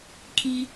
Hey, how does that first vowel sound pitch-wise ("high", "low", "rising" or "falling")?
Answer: high